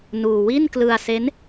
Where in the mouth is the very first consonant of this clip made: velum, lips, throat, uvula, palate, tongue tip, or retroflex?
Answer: tongue tip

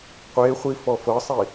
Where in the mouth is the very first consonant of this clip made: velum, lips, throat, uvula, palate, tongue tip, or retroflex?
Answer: uvula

